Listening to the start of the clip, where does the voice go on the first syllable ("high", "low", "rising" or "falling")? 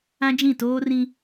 high